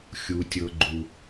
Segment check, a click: present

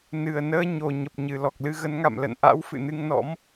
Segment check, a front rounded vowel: absent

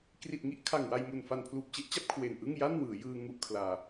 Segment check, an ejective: absent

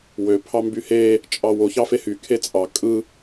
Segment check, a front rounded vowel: present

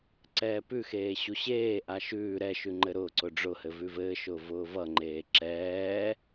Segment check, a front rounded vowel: absent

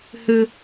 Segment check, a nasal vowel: absent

